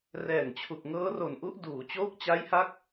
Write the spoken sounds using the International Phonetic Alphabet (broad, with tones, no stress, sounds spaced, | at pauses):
r ɛː˨˩ ŋ t͡ɕʰ u˨˩ k̚ ŋ ɤː˦˥ r o˨˩ n ʔ u˦˥ ʔ d uː˩˦ t͡ɕ oː˦˥ k̚ t͡ɕ a˦˥ j h a˦˥ k̚